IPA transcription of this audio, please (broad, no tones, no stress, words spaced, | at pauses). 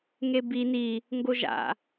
ŋebi ni | ŋɡoʒa̰